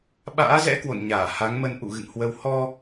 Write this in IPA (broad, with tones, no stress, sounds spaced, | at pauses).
ɓ a̰ː˧˥ z ɛ̰˧˥ k w o̰˧˨ n ɲ aː˧˩ h a˨˦ ŋ m ə˧ n ʔ ṵ˧˨ ɣ ɨ̰˧˨ ŋ h w ə˧ w h ɔ˧